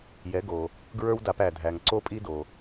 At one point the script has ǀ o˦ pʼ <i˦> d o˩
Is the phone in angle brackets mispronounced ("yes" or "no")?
no